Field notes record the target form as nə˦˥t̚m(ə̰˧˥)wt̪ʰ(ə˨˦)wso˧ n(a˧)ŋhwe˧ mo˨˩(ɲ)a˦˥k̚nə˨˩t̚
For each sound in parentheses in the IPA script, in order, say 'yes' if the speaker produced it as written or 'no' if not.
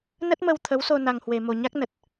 no, yes, yes, yes

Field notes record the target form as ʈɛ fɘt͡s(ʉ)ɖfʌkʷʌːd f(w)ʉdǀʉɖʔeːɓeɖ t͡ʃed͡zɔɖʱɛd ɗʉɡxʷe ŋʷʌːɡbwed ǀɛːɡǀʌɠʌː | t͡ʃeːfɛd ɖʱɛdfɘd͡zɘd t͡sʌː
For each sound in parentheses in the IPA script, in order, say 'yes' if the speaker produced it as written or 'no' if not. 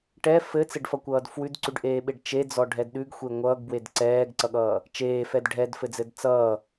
no, yes

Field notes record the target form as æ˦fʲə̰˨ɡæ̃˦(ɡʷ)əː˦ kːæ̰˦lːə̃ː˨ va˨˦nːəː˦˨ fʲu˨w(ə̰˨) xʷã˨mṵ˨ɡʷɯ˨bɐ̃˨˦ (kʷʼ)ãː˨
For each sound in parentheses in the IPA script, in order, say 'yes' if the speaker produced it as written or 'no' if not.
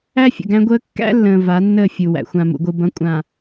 yes, no, yes

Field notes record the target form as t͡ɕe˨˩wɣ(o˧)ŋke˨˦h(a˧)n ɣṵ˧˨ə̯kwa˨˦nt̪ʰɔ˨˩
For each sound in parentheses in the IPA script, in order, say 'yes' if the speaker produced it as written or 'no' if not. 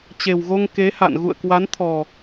yes, no

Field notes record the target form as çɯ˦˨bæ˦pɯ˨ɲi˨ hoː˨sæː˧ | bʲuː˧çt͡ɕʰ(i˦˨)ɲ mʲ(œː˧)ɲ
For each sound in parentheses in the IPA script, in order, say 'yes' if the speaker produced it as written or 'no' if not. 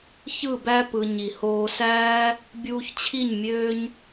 yes, no

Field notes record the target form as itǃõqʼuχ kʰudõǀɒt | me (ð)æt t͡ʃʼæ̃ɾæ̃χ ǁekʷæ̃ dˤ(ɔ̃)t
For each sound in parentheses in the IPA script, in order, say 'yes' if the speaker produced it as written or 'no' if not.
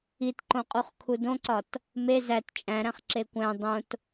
no, no

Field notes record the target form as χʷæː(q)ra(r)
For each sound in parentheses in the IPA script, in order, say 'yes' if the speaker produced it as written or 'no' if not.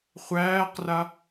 yes, no

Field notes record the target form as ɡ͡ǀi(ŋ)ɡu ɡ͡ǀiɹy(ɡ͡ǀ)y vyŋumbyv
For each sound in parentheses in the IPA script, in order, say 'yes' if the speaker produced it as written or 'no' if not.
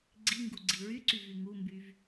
yes, no

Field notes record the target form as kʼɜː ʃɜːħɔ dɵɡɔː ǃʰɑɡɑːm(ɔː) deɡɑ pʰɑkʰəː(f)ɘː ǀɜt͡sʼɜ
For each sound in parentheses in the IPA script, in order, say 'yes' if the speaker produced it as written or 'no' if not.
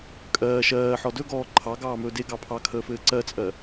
no, yes

